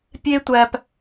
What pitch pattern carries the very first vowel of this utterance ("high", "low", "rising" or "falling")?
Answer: high